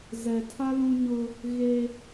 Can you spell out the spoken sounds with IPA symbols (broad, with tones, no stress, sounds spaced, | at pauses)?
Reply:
z ɛ˨ tʰ a˦ l ũ˦ ɲ ʊ˦ | ɣ e˦